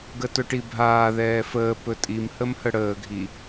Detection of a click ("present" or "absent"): absent